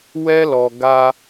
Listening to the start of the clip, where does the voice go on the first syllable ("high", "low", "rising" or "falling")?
high